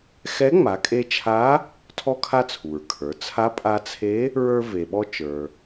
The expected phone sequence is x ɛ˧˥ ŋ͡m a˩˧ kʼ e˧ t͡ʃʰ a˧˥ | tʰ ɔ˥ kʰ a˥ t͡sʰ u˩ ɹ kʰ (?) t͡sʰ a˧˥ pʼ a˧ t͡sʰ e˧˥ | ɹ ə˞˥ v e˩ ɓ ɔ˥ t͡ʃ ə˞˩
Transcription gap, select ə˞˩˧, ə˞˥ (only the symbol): ə˞˩˧